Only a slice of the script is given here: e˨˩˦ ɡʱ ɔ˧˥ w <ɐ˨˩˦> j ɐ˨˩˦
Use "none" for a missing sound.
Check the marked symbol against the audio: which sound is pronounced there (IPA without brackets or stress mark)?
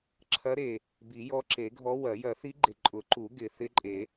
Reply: ɐ˨˩˦